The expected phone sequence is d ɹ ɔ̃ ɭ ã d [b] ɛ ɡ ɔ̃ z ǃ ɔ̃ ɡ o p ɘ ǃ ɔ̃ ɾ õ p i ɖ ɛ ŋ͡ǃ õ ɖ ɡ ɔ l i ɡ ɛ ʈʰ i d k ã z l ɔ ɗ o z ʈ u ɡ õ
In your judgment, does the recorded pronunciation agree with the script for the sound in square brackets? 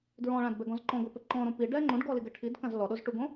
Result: yes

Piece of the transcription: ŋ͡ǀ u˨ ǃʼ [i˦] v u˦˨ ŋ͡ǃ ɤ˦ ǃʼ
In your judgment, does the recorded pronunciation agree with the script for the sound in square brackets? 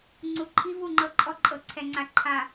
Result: yes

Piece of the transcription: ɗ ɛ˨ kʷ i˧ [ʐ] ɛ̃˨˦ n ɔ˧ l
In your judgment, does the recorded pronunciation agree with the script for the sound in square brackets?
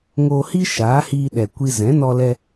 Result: no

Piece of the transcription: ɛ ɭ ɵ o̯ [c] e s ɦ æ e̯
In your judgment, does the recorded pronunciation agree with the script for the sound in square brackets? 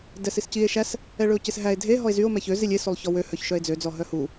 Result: yes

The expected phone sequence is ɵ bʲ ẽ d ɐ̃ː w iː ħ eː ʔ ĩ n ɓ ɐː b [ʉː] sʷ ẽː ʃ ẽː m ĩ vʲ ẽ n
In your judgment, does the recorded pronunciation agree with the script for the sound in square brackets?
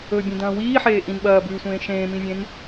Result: yes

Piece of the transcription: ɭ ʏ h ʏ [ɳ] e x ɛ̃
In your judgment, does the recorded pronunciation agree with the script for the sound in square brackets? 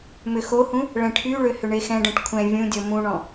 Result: yes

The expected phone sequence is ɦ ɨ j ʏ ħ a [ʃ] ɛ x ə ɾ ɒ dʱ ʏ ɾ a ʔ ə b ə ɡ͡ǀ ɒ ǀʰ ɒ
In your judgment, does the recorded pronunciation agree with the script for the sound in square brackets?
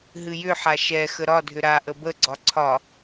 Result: yes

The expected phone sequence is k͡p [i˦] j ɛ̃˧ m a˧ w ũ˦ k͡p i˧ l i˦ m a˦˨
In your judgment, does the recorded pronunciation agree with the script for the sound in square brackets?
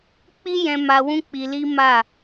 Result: yes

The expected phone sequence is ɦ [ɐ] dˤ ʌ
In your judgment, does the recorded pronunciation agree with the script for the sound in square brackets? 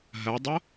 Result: yes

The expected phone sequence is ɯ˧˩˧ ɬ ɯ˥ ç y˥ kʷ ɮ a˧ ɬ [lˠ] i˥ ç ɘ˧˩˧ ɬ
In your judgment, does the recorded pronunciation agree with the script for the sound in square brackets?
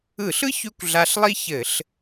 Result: yes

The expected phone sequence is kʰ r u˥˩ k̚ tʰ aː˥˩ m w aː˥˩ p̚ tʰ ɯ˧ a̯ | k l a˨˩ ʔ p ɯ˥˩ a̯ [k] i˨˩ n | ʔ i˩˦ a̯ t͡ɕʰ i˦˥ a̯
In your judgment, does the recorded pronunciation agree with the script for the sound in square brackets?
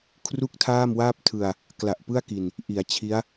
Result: yes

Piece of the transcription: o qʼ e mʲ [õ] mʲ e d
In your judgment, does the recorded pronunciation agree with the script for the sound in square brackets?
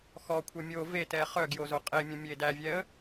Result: yes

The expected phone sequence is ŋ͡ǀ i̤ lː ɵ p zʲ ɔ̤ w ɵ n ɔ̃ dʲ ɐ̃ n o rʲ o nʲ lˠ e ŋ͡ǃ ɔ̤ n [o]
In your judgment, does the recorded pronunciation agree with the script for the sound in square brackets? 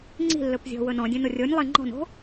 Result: no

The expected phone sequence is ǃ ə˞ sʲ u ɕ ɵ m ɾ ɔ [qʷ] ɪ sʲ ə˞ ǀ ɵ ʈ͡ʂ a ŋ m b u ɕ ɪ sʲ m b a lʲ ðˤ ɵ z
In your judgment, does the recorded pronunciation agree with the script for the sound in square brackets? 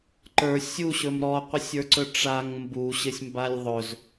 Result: yes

